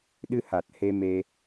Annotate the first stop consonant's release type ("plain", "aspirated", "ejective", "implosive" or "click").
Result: implosive